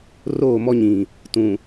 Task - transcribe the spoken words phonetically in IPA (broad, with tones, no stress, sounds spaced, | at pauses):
r oː˦˨ m ɔ˦ ɲ ĩ˨ | t ũ˨